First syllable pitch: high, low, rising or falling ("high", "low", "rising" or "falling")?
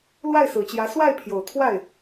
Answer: falling